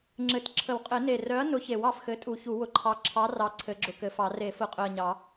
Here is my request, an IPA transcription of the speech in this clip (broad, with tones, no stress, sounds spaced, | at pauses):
ŋ͡ǁ ɘ˨˩˦ t ǁʰ ə˨˩˦ w qʼ ɘ˨˩˦ n e˨˩ r œ˨˥ ɐ̯ n ʊ˨˥ ç e˨˩˦ w ɑ˨˩ f x ɘ˨˥ tʼ u˨˩˦ ç u˨˩˦ w ʊ˨˩ ǃʰ ɑ˨˥ ǁʰ ɑ˨˥ r ɑ˨˥ ǀʰ ɘ˨˩˦ ɡ͡ǁ ʊ˨˩ k ɘ˨˩˦ f ɑ˨˩˦ r e˨˩˦ f ʊ˨˩˦ qʼ œ˨˩ ɐ̯ ɲ ɑ˨˩˦